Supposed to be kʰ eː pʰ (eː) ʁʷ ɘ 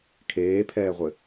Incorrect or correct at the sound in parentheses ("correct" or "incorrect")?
incorrect